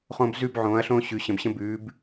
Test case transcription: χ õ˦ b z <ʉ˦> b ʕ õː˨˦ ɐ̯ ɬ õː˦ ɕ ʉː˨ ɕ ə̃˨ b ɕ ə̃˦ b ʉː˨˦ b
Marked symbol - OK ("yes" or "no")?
yes